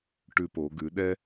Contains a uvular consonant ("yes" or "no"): no